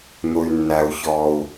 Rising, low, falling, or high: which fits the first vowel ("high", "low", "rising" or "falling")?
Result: low